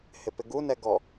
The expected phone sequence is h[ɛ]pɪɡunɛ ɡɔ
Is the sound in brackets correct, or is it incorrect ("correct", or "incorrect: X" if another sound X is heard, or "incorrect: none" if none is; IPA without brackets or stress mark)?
incorrect: ɪ